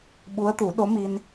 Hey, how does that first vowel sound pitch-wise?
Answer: rising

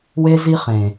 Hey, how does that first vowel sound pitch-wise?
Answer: high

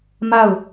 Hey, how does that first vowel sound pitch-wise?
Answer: falling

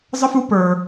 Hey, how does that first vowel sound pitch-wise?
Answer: high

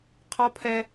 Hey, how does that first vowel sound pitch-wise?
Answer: high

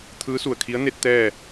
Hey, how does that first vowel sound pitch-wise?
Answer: rising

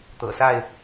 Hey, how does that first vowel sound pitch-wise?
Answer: low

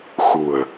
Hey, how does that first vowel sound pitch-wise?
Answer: low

